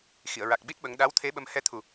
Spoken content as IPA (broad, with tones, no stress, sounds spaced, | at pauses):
x i˨˩˨ ə̯ ɹ a˨˩ k̚ ɓ i˦˥ t̚ ɓ ə˧˥ ŋ ɗ a˧˥ w t̪ʰ e˧˥ ɓ ə˧ m h ɛ˧ t̪ʰ u˨˩